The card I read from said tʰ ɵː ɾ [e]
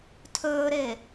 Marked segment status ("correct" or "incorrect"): correct